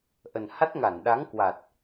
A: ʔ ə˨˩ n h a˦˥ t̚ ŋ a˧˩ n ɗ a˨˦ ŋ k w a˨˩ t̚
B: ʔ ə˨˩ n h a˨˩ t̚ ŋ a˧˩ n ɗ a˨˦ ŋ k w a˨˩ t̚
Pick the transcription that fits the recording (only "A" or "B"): A